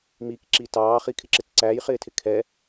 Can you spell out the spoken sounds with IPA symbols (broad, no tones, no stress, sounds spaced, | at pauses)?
m i k ǁ i t ɑː χ i kʰ ɪ ǁ ɪ t ǀ æ j χ ɪː tʰ ɪ kʰ ɛ